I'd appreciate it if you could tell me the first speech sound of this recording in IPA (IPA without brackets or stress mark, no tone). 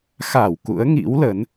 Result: x